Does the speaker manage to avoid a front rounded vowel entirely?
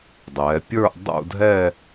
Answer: yes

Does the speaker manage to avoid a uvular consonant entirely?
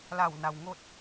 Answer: yes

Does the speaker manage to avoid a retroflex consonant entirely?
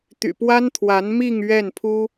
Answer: yes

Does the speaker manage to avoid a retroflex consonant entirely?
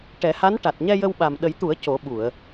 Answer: no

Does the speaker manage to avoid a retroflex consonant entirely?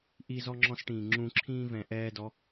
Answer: no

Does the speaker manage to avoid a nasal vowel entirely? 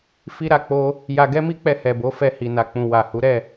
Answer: no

